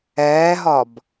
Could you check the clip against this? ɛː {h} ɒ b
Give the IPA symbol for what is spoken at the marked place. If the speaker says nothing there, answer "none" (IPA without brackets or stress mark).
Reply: ɦ